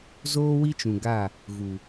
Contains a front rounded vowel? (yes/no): no